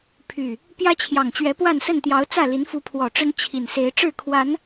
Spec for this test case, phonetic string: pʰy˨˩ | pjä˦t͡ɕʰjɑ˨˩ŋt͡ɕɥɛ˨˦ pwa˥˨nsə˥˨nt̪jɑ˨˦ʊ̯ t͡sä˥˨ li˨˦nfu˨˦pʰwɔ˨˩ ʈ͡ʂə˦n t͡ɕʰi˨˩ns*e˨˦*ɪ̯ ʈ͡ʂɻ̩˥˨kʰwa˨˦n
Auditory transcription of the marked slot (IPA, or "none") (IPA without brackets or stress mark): e˨˦